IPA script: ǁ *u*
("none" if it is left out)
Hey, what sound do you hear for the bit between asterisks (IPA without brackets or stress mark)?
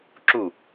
u